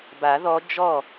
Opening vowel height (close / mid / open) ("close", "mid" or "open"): open